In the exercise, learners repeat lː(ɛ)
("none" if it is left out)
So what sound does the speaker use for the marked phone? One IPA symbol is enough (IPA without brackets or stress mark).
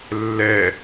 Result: ɛ